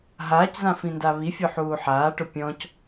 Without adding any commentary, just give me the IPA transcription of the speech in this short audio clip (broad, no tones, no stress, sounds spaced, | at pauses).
ɦ aː c z ã f ĩ n d a β i fʲ ʊ ħ uː ħ aː ʈ ʊ pʲ ɔ̃ c